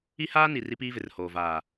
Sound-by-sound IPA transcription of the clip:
i˦ h aː˦ n i˨ r i˦ p iː˦ v ɪ˨ r h oː˨ v aː˨

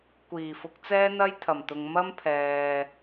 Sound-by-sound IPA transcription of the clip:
kʷ iː˨˩ f ʊ˨˥ k̚ t͡s ɛː˥ n̪ ɐ˥ j t̪ʰ ɐ˨˩ m t̪ ʊ˨ ŋ m ɐ˥ m pʰ ɛː˨

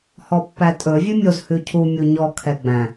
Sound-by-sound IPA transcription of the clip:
h ɔ pː æ tʼ ɵ vʲ ʉ mʲ o z h ʉ cʰ u mʲ u ɲ ɔ kʰ ɛ ɡ͡b æ̃

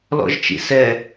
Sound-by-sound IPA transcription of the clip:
l ɔ̰ ʒ t͡ʃ ḭ s ɛ

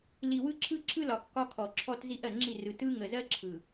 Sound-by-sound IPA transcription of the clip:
l i˨ w ɯ˦ ǁʰ ɯ˦ ǁʰ ɯ˦ l ɒ˨ kː ɒ˦ kʰ ɔ˨ ǁʰ ɔ˦ t z i˦ ʔ ɜ˨ ŋ͡ǁ i˦˨ r ɯ˨ t ɯ˦ ŋ ə˨ z ɜ˦ ǁʰ ɯ˨

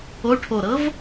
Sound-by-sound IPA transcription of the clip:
o ʈʰ o ɾ ɤ v

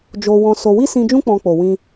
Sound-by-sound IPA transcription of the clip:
d͡ʒ o˧ w ɔ̃˧ s o˧ w i˦ s ĩ˧ d͡ʒ ũ˦ k͡p ɔ̃˧ k͡p o˨ w ĩ˧

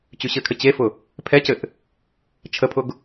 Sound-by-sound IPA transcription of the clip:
t͡ɕ y ɕ ɘ kʰ ɘ t͡ɕ e f ʊ | pʰ ɛ c ɘ ʔ | t͡ʃʰ ə pʰ ʊ ɡ

